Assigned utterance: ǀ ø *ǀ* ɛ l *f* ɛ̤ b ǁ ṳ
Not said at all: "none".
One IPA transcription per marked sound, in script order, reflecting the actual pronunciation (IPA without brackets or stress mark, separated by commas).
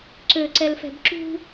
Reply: ǀ, f